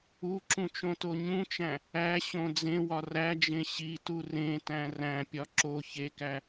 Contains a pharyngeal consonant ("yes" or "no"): no